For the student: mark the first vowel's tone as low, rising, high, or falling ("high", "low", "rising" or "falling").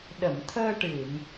low